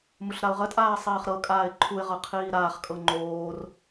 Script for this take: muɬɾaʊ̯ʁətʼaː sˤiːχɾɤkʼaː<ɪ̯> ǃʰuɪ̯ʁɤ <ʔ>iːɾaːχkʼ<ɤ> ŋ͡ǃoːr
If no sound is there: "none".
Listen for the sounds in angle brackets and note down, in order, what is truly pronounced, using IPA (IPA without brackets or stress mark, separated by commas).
ɪ̯, qʰ, ɤ